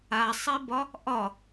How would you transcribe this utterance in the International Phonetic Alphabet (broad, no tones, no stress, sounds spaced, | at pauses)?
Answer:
a sˤ i b ɒ | ʔ ɒ